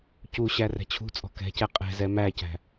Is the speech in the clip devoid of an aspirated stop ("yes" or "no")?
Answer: no